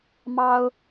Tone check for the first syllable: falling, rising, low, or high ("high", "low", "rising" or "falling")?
high